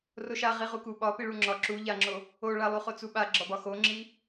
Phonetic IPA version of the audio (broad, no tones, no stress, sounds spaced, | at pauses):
r o ʃ a ʁ i ʁ u k u ɓ ɒ p i ɭ u ŋ͡ǁ ɒ ǁ u ʎ a ŋ͡ǁ o | o ɭ a lˠ u χ o t͡s u ɓ a ɡ͡ǁ ɒ b ɒ x o ŋ͡ǁ i